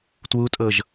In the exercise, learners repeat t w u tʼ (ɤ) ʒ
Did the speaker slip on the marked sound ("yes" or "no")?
no